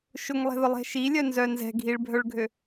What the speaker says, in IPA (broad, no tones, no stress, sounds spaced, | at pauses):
ʃ ʊ ŋ lˠ ɛ̤ ð ʊ lˠ ɛ̤ ʃ i lʲ œ n z œ n z ɛ̤ ɡʱ i ɭ bʱ œ ɭ ɡʱ ø